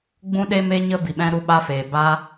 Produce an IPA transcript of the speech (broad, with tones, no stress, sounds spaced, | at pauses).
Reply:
ɡ͡b ũ˦ ɗ e˦ m e˦ ɲ ə˦ b i˨ ɓ ɛ̃˧ ɾ u˧ ɓ a˧ f eː˨ b aː˦